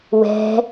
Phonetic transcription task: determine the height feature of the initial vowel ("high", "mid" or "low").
mid